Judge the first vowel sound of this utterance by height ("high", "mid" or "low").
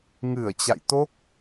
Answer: high